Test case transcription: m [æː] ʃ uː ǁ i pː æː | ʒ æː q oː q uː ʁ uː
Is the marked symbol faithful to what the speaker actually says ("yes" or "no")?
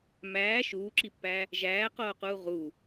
yes